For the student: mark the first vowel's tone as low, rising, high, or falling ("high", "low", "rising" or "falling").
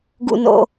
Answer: low